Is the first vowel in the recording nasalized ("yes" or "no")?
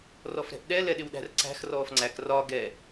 no